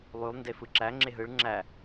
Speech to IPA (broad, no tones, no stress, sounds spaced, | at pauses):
lˠ y lˠ n d e f ɯ ǁ æ ŋ͡ǁ e ɦ ɯ ɭ ŋ͡ǁ æ